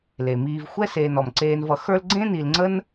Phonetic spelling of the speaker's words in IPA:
l e˩ m iː˨ v xʷ ɛ˦ s eː˨ n ɔ˩ m ǀ eː˨ n v ʌ˨ x ə˞˦ l ɡ͡ǀ ẽ˥ n i˨ l ŋ͡ǀ ə˥ n

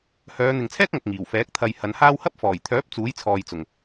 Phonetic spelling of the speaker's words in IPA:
h œː˨˧ n̪ ɪ˨ ŋ t͡sʰ ɛː˥ k̚ ŋ ɐ˨ k̚ ŋ iː˨˩ w f ɛː˨˥ k̚ t̪ʰ ɐ˧ j h ɐ˨˧ n h aː˥ w h ɐ˥ p̚ f ɔː˨˩ j t̪ʰ œː˨˥ p̚ t͡s uː˨˥ j t͡sʰ ɔː˨ j t͡s ʊ˨˩ ŋ

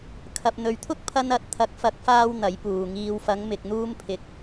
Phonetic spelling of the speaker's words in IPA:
kʰ ɐ˨ p̚ n̪ ɵ˨ ɥ t̪ʰ ʊ˥ k̚ pʰ ɐ˧ n ɐ˧ t̚ t̪ʰ ɐ˨˥ k̚ f ɐ˨˥ k̚ f aː˧ w n̪ ɐ˨˥ j p uː˨ ŋ iː˧ w f ɐ˨˧ ŋ m ɪ˨ k̚ n̪ uː˧ m pʰ ɪ˨ k̚

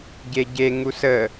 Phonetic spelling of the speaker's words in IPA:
ɟ e ɟ e ŋ u s ə

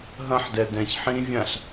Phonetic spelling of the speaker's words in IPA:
ɦ ɐ̃ ħ d ɛ d ɛ̃ ç ħ ĩ vʲ ã ɬ

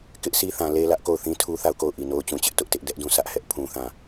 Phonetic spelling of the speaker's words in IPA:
k ɪ˦ ʔ s i˦ θ ã˨ l e˦ l ä˦ ʔ k o˦˨ ʊ̯ θ ĩ˦ tʰ u˦ θ a˦˨ ʊ̯ k o˦˨ ʊ̯ ʔ i˨ n o˦ ʊ̯ t͡ɕ ũ˨ t͡ɕ ɪ˦ ʔ t ʊ˦ ʔ t ɪ˦ ʔ d ɛ˦ ʔ d ũ˦˨ s ä˦ ʔ h ɛ˦ ʔ pʰ ũ˦ θ ã˦˨

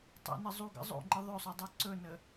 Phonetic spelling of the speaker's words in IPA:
tˤ ə̰ n ə zˤ u ɡ ə̰ zˤ o̰ ŋ͡ǃ ə ðˤ ɵ sˤ ɵ dˤ o ǀ ɵ n ə

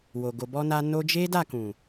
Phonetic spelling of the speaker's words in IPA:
w o˨ ɡ o˨ b ɔ˧ n a˧ n o˧ d͡ʒ e˦ d a˦˨ k ũ˨

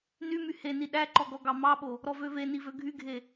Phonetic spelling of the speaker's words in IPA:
n y m y h e n i ɗ æ ǃ ɔ ɡ ɔ ɡ ɑ m ɑ ɓ o | ɾ ɔ v ø v e n i v ø ɡʱ y ɡʱ e

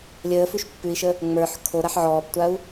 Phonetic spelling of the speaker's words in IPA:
lʲ əː f ʉ ʃ pː ʉ i̯ ʃ ə | ŋ͡m ə˞ ħ kʰ o ɾ a ħ ʕ ɔː p tʷ a u̯

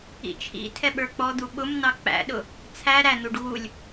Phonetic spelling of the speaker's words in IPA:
ḭ t͡ʃʰ ḭ tʰ ɛ ɓ ə˞ k͡p ɔ d̪ u ɓ ʊ m n̪ ɑ k͡p æ̰ ɗ ʊ | t͡sʰ æ ɾ æ n̪ u ɖ ɣ u lʲ

